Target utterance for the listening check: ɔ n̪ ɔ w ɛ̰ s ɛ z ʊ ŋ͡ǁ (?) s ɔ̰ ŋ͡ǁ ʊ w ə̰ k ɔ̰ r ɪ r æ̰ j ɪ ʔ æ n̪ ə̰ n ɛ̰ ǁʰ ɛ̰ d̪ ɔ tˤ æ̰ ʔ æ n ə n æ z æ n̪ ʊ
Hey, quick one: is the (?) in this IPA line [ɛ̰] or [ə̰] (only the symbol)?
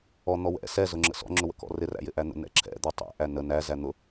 ə̰